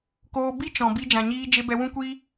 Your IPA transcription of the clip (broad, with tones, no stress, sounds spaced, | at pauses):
k oː˧ b i˦ t͡ʃ ɔ̃˨ b i˧ d͡ʒ ã˨ ɲ iː˧ d͡ʒ e˧ b ɛ˧ w ũ˦ kʷ iː˦